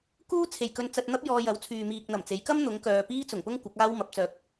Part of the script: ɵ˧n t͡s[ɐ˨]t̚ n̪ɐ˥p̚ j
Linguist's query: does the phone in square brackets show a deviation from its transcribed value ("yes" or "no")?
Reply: yes